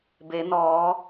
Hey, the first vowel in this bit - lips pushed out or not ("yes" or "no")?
no